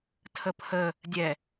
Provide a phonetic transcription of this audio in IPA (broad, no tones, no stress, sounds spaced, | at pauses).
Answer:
tʰ ə pʰ ə | dʲ ɛ